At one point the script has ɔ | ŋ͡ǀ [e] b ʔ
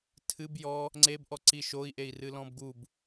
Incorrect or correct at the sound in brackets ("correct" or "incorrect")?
correct